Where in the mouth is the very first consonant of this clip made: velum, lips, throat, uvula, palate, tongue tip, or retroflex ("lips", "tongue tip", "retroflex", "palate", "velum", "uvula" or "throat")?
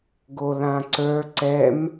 velum